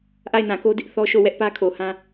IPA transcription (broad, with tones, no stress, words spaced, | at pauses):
ʔa˦˨ɪ̯nã˨ko˦dɪ˦ʔ θɔ˦ʃo˦˨ wɛ˦ʔ pä˦kʰo˨hã˦